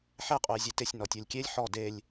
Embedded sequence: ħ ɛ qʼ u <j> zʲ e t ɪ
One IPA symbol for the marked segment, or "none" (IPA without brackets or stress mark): j